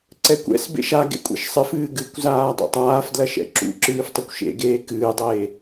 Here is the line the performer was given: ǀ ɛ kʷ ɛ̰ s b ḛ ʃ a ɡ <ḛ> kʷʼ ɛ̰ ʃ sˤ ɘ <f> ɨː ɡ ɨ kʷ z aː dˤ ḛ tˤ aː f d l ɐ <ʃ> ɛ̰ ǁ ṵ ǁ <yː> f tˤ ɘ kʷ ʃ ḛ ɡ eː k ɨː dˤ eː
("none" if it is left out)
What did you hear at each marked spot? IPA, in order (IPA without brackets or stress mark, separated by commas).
ḛ, f, ʃ, ɨː